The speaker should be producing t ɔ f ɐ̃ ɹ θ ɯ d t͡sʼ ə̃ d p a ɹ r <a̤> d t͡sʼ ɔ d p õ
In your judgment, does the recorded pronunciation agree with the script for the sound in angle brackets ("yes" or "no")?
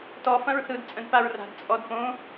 yes